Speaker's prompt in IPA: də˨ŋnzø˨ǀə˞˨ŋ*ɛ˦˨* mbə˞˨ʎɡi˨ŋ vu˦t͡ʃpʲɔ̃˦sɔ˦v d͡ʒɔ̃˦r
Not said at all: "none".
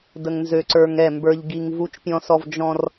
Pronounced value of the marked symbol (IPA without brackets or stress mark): ɛ˦˨